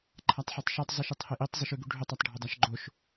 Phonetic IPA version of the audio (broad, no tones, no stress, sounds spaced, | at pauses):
ǃʰ a tˤ ħ e tˤ ʃ ɵ tˤ zˤ i ʃ ɨ tˤ h e ʔ i tˤ zˤ ɨ ʃ ʉ ɡ ʉ ɖʱ ɵ tˤ ɐ tˤ ɖʱ ɵ dˤ a ʃ ɡ͡ǃ o ʃ